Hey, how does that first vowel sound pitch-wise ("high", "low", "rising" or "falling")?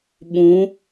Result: rising